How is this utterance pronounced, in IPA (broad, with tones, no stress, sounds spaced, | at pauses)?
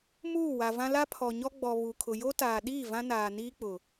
m uː˦˨ w a˨ v ã˦ l a˦ pʰ ɔ˨ ɲ ɔ˦ ɡ͡b ɔ˨ β u˨ kʰ ʊ˨ j o˦ t aː˨ ɗ iː˦˨ v ã˦ n aː˨ n iː˦ k͡p ʊ˨